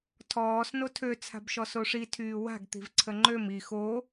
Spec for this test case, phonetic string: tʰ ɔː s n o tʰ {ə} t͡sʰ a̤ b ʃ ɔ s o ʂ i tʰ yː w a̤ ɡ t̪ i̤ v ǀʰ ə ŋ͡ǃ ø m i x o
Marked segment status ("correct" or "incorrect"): incorrect